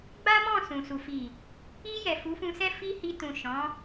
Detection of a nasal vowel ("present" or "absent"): present